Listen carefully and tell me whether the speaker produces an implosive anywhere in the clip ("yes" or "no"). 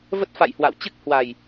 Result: no